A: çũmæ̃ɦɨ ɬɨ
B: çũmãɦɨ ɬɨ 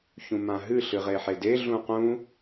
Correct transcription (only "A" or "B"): B